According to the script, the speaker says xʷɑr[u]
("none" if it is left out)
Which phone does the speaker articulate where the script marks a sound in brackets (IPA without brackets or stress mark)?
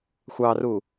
u